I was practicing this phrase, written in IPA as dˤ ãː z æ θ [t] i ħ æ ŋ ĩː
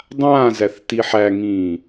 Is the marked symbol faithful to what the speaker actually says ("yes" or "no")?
yes